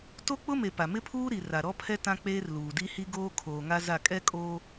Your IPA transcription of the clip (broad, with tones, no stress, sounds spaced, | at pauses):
t o˦ k͡p ʊ˦ m e˨ p a˨ m ɪ˦ pʰ uː˦ ɾ i˨ r a˨ ɾ ɔ˦ pʰ ɛ˦ t ã˦ k͡p eː˦ r l uː˨ d i˦ h i˦ ɡ oː˦ kʰ oː˨ ŋ a˦ z a˦˨ kʼ ɛ˦ kʼ oː˦